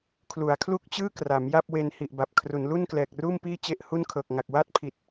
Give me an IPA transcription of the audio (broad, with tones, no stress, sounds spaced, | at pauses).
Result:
kʰ l u˩˦ a̯ kʰ l u˥˩ k̚ t͡ɕ ɯː˥˩ k r a˩˦ m j a˥˩ p̚ w e˧ n h i˨˩ ʔ b a˨˩ p̚ kʰ r u˩˦ n l u˥˩ n k l ɛː˨˩ k̚ r uː˥˩ m p iː˥˩ t͡ɕ e˥˩ ʔ h u˥˩ n kʰ ɤː˨˩ k̚ ŋ a˨˩ k̚ w a˥˩ t̚ pʰ i˨˩ t̚